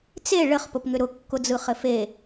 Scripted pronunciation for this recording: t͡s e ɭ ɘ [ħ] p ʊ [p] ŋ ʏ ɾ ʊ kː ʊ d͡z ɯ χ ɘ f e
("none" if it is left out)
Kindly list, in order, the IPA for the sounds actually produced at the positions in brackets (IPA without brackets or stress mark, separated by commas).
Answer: χ, p